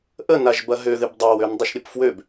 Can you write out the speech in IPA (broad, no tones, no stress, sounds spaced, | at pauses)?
ʔ ə n a ʒ b ɐ ɦ ø ð ɪ b dˤ a w ø n dˤ ə ʃ ɾʲ ə p f w ø b